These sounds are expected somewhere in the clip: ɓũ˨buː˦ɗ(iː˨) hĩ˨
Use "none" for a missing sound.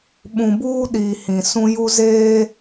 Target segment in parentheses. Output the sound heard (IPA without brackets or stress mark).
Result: iː˨